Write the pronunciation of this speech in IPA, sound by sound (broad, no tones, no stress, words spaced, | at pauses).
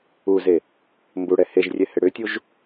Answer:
uze | mbuɽɛ heʒrʲɛhɪ ɽʏtʲuʒ